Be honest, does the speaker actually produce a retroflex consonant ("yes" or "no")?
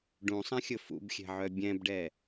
yes